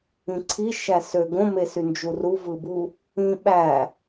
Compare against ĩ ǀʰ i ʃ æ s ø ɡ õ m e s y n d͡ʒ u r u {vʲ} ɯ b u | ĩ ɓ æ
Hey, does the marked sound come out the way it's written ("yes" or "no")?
no